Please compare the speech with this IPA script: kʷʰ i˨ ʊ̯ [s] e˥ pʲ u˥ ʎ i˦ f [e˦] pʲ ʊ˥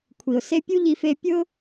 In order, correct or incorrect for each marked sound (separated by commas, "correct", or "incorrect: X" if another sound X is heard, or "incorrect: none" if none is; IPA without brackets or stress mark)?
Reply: correct, correct